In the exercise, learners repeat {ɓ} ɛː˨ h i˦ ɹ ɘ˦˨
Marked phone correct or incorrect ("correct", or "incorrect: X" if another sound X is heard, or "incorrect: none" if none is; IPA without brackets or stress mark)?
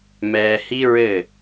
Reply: incorrect: m